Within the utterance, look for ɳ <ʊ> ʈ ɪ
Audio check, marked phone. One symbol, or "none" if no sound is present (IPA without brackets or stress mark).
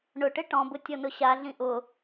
ʊ